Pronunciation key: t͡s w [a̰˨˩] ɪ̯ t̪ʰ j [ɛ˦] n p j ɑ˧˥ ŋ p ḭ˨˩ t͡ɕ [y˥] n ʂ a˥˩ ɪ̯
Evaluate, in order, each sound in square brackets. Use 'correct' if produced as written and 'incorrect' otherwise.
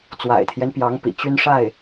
correct, correct, correct

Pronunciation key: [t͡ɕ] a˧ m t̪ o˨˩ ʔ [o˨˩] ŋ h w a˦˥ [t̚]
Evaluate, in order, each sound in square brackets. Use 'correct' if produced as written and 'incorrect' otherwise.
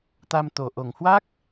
incorrect: t̪, correct, incorrect: k̚

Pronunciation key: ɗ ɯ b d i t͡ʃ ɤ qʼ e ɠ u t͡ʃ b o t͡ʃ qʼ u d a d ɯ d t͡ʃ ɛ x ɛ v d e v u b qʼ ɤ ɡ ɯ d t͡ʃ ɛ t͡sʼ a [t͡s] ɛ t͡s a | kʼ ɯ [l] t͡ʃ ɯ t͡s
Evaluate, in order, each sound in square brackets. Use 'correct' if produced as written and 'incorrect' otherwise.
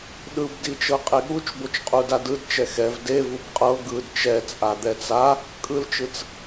incorrect: d̪, correct

